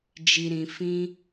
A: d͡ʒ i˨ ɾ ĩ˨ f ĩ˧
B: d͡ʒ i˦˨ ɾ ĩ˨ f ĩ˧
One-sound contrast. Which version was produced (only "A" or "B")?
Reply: A